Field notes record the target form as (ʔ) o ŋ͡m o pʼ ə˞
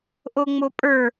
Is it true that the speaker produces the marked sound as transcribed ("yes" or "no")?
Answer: yes